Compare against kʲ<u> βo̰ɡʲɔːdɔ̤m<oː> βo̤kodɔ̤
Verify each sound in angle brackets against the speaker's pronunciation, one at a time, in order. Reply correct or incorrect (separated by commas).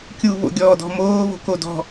correct, correct